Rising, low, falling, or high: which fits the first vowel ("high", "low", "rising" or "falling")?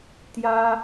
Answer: high